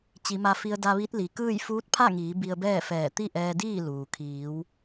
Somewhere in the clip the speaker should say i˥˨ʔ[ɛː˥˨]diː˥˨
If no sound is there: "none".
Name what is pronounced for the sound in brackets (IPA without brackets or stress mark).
ɛː˧